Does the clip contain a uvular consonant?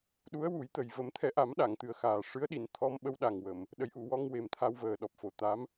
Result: no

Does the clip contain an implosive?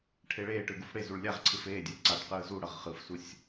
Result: no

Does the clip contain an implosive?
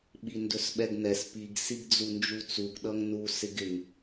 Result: yes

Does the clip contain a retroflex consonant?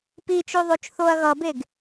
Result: no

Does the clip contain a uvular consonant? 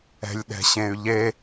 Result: no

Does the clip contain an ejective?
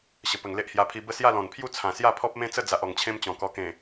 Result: no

